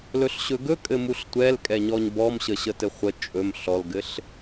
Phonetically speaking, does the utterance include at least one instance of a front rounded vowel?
no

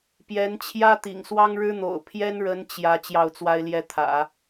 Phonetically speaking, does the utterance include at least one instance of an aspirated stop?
yes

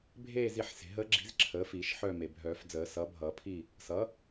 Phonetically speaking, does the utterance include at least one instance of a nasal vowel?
no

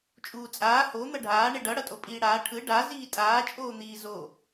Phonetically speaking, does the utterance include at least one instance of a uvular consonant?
no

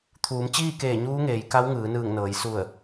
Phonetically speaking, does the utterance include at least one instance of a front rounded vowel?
no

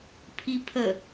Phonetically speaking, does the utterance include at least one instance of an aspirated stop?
yes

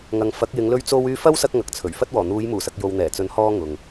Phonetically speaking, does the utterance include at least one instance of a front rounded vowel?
yes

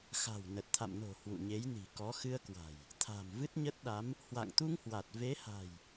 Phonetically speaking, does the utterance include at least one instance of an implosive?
yes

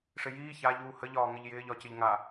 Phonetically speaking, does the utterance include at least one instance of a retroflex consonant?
yes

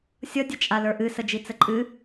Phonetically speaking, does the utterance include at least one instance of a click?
yes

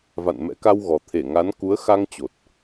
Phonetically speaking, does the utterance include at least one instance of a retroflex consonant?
no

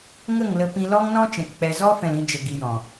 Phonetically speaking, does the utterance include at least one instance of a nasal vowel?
yes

